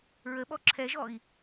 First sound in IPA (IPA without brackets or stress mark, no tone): ɹ